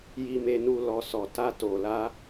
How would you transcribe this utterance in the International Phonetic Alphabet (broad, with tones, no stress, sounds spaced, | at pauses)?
j i˧ m e˧ n u˧ l ɔ˨ s ɔ˨ t a˧ t o˨ l a˧